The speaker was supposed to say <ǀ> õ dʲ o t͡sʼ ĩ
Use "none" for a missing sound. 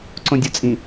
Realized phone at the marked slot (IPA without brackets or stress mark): ǀ